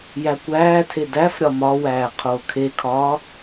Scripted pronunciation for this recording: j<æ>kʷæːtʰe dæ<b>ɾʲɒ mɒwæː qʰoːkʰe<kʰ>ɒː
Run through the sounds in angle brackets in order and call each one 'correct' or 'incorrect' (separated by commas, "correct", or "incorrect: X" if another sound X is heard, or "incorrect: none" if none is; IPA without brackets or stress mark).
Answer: correct, incorrect: f, correct